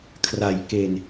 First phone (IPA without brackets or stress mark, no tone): kʰ